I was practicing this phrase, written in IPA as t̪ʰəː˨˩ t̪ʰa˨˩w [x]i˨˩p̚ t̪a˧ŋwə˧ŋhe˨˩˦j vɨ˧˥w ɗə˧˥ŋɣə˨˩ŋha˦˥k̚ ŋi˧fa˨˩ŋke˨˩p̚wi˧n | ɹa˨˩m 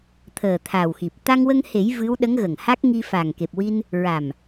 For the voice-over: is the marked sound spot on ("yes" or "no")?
yes